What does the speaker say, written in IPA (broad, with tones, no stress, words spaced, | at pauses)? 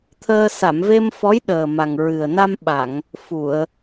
t̪ʰəː˧ sa˨˩˨mve˧m fɔ˧˥jɗəː˨˩ ma˨˩ŋ ɹɨ˨˩ə̯na˧m ɓa˨˩˨ŋ | fu˨˩˨ə̯